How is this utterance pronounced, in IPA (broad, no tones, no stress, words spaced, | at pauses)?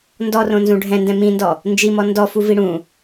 ndɔrõ nzũɖʱɛ̃ndɛ̃ mĩndɔ | nd͡ʒimɔ ndɔ fuviɽũ